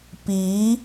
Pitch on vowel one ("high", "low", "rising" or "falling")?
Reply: rising